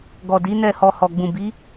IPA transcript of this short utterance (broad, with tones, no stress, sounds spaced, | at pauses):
ɡ ɔ˨ d i˨˦ n ɛ˦˨ h ɔ˧ h ɔ˨ ɡ͡b ũ˨ b i˨˦